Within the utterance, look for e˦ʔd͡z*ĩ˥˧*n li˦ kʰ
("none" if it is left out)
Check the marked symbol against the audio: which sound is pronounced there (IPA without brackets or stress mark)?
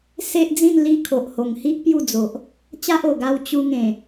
ĩ˥˧